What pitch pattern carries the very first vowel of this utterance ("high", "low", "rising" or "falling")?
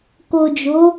low